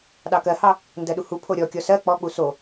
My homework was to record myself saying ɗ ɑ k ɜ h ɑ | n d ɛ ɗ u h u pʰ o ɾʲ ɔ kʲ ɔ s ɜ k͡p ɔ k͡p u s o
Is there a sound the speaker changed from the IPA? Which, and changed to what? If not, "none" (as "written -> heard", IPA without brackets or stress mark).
ɛ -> ɜ